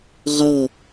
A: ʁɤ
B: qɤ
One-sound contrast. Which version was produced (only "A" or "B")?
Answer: A